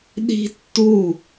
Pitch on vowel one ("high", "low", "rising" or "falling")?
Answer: high